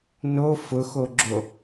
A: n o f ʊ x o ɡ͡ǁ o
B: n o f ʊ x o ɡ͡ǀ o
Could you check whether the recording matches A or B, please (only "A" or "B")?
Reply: A